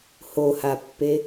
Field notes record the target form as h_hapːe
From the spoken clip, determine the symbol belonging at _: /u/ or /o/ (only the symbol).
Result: o